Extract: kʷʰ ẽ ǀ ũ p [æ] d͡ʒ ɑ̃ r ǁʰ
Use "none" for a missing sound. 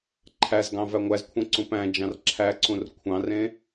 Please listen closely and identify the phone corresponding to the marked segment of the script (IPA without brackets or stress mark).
æ̃